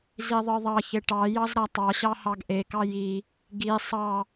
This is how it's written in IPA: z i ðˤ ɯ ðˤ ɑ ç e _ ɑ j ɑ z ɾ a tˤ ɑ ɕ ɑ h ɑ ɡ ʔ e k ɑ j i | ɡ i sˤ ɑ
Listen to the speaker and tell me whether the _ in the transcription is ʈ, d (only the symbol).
ʈ